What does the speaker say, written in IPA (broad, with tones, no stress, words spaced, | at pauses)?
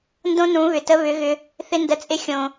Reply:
ndõ˦nũ˨˦βʏ˨ tə˧βʏ˨˦ɣʏ˧ | θɪ˧ ndə˨t͡sʼɪ˧xʲõ˨